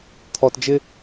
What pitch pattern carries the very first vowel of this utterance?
low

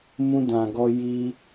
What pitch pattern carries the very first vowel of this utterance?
high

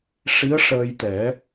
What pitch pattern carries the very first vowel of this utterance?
rising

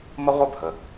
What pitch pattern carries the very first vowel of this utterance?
high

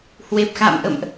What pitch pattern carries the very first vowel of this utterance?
low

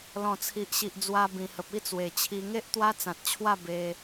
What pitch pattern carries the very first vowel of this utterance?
low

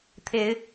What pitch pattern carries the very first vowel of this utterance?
rising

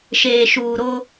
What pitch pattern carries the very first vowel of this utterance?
low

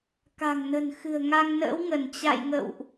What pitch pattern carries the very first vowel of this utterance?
low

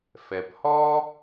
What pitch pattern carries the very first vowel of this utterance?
low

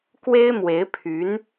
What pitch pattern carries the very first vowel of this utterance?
high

